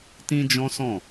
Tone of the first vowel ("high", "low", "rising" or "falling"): high